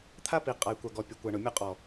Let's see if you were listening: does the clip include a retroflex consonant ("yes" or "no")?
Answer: yes